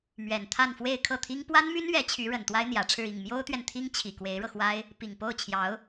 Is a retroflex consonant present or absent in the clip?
present